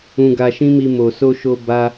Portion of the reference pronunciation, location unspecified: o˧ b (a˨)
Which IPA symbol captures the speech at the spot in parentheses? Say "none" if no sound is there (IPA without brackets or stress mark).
a˦